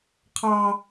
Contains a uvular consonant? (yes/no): yes